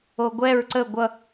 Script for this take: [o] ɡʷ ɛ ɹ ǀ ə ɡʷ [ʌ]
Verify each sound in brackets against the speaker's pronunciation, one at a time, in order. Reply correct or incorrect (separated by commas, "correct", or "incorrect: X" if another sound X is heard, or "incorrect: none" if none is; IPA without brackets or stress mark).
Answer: correct, correct